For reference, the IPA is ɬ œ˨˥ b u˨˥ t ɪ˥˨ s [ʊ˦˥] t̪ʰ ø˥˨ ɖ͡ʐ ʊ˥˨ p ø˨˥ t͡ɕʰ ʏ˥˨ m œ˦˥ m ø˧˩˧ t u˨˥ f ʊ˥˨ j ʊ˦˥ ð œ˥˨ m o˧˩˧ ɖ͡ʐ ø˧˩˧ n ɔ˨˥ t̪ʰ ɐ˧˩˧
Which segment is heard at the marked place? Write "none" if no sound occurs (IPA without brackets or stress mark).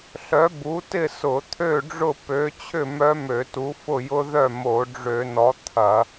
ʊ˧˩˧